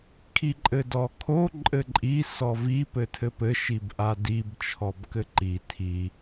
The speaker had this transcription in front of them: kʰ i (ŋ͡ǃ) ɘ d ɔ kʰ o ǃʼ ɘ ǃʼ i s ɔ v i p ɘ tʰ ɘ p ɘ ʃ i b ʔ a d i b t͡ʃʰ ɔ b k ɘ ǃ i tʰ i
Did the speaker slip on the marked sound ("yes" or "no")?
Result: yes